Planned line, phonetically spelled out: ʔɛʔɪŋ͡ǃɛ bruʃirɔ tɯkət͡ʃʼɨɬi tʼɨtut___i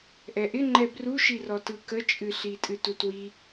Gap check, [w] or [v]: w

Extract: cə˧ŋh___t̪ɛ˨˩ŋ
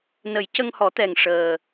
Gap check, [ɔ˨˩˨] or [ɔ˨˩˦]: ɔ˨˩˦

